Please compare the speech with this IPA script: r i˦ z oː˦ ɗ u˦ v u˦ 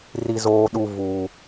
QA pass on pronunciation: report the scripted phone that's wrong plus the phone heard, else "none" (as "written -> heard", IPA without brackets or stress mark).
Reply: none